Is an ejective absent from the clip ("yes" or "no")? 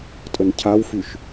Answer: no